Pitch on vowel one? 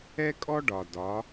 high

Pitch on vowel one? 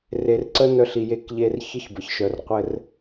low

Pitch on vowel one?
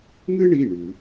high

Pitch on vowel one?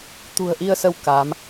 low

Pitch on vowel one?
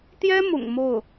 high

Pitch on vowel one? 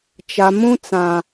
low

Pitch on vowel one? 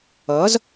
rising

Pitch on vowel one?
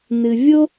low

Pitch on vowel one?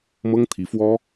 high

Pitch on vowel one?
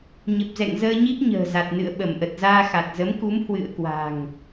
low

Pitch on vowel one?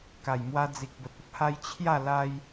low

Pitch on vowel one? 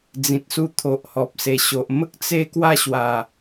low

